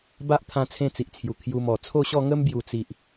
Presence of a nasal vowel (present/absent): present